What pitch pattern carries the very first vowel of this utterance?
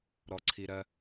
low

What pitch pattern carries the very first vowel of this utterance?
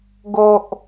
low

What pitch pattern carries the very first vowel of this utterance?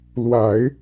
low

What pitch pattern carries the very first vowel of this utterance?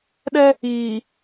high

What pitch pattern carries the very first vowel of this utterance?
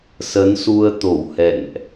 rising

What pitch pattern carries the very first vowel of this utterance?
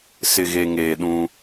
low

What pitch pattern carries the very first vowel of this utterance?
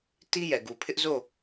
high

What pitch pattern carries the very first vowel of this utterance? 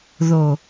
low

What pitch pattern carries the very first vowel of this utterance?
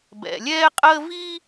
low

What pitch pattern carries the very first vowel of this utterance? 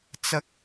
high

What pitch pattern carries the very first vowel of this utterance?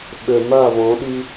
low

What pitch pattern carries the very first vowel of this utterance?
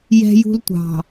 high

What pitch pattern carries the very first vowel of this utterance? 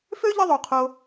high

